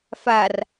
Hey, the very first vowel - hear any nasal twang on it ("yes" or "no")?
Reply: no